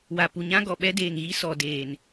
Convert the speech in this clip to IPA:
wa˨pu˨ɲã˦ɡɔ˨ ɓɛ˦deː˨ŋɣi˦ sɔ˨deː˨n

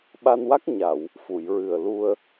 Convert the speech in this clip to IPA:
ɓa˧nwa˦˥k̚ ɲa˨˩˨w | fu˨˩˨jɹɨ˨˩ə̯lu˧ə̯

